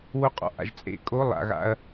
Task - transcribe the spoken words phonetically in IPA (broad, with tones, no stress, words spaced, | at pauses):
wo˧qʼɔ̰˨ʔa̰˨ʒ t͡sʼḛ˨kʼo˨˦ lˠa̰˨ɣa̰˧ɐ̯